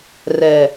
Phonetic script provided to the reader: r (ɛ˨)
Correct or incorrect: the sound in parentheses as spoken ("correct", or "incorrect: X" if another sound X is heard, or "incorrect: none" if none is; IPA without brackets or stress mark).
correct